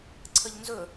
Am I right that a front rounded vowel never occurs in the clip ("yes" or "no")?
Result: yes